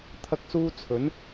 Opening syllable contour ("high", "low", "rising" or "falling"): high